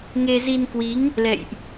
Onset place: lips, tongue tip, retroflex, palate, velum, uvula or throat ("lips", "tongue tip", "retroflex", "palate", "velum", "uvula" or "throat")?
velum